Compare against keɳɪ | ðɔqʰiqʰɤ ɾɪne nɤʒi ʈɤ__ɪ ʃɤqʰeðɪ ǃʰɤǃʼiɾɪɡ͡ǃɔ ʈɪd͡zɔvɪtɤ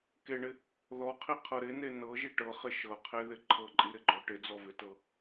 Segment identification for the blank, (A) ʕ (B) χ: B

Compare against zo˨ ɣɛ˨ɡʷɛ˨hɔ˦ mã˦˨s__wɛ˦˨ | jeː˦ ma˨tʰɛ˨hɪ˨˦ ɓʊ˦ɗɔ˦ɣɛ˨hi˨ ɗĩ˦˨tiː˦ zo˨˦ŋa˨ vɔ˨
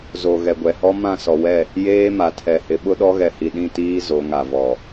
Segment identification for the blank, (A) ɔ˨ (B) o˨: A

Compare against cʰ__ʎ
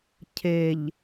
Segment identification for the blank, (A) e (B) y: A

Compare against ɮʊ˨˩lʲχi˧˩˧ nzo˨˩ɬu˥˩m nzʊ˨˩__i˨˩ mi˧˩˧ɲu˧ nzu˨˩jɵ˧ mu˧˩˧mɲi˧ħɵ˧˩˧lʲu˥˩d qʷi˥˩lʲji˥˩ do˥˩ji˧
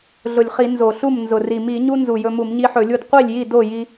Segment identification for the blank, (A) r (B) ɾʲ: A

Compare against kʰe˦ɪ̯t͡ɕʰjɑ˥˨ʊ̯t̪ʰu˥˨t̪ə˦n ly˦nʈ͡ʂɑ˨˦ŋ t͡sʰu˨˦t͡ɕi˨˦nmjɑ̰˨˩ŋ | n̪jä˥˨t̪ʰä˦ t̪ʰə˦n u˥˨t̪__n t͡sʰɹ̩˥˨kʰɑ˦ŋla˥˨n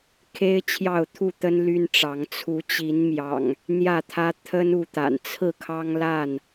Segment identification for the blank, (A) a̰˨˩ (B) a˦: A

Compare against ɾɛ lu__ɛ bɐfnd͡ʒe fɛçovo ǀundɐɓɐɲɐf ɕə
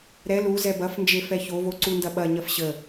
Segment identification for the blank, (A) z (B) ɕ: A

